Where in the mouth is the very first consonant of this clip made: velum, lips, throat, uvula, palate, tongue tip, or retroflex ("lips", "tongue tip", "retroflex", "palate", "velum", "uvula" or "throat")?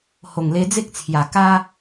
throat